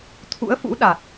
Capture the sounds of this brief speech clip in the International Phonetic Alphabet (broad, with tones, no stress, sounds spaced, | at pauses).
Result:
t̪ʰ ṵ˧˥ ə̯ f ṵ˧˥ ɗ a˨˩ t̚